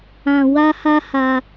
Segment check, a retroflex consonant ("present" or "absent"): absent